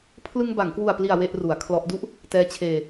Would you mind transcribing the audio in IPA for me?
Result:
pʰ l ɯ˧ ŋ b a˩˦ ŋ k w u˨˩ a̯ p l i˨˩ a̯ w e˥˩ ʔ r u˩˦ a̯ kʰ l ɔ˦˥ ʔ d u˦˥ ʔ | t ɛː˦˥ t͡ɕʰ eː˧

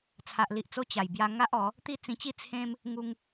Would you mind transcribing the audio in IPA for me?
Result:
t͡sʰ a˨ ʔ l i˨ ʔ t͡s o˧ t͡ɕ a˨˩ j b j a˧ ŋ a˦ ʔ ɔ˨˦ | t̪ i˦ t͡s ĩ˧ t͡ɕ i˦ t͡sʰ ẽ˦ m | ŋ u˧ ŋ

